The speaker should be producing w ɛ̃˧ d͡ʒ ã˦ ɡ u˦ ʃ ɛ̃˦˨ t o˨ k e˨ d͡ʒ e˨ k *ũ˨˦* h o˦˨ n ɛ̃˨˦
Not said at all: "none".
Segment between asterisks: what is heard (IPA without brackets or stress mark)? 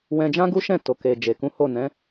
ũ˨˦